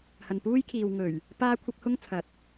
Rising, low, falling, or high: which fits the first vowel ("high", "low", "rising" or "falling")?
low